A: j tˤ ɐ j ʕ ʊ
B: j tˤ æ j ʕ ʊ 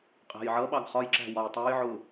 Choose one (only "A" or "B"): B